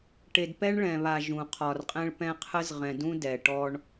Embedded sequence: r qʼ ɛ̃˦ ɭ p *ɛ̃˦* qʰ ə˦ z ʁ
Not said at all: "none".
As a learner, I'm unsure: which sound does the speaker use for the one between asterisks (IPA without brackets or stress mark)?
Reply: ɛ̃˦